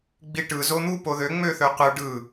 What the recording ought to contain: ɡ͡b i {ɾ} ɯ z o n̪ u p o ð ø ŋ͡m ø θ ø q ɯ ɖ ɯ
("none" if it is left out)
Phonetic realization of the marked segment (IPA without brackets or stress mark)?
ʈ